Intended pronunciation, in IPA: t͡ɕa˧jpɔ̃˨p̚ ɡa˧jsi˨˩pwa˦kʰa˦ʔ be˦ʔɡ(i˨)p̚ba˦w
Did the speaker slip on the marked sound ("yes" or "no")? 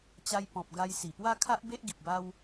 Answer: no